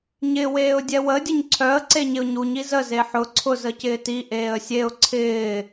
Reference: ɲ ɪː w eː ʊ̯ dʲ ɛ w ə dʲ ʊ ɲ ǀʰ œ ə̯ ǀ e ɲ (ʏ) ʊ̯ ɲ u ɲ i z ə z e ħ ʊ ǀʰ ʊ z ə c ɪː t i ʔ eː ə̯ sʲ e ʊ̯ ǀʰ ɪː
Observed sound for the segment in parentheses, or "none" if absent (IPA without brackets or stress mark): ɪ